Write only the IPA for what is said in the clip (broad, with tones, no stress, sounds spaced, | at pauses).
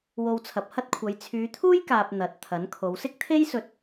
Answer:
w o˧ w t͡sʰ ɐ˨ p̚ h ɐ˥ t̚ kʷʰ ɐ˨˧ j t͡sʰ yː˨˧ t̪ʰ uː˥ j k aː˨ p̚ n̪ ɐ˨˥ t̚ t̪ʰ ɐ˨˥ n kʰ o˨˧ w s ɪ˥ k̚ t̪ʰ e˥ j s ɵ˧ t̚